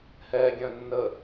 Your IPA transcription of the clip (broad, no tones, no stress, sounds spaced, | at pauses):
h ɛ ɡʲ œ̃ nː ə